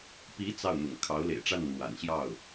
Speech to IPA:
p i˧˥ t͡s ɑ˥˩ ʊ̯ n̪ ʊ̰˨˩ ŋ kʰ ɑ˧˥ ʊ̯ l ḛ˨˩ ɪ̯ ʈ͡ʂ a˥˩ n n̪ w a̰˨˩ n ɕ j ɑ˥˩ ʊ̯

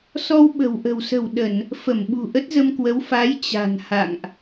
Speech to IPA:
s ɔ˧ w ɓ ə̤˨˩ w ʔ ə̤˨˩ w s ə̤˨˩ w ɗ ə˧˩˨ n | f ə˧˩ m ɓ ṳ˨˩ ʔ ə˦˥ t̚ z ə˧ m k w ə˨˦ w f a˨˦ j t͡ɕ a̤˨˩ n h a̰˧˨ ŋ ʔ

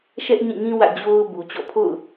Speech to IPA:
ʃ ɛ˦ ʔ ɲ ĩ˦˨ ŋ ĩ˦ w ä̰˦˨ d͡ʑ o˦ ʊ̯ b u˨ t͡ɕ ɔ̰˦˨ pʰ o̰˦˨ ʊ̯

